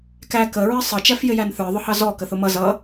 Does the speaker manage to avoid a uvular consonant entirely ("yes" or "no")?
yes